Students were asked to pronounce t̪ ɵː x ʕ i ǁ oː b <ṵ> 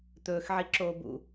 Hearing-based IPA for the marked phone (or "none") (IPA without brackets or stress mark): ṵ